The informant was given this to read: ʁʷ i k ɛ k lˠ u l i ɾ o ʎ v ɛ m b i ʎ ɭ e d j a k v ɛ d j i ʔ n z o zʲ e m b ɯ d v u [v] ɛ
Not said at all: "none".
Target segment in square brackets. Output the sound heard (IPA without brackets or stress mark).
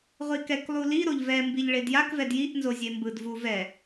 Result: v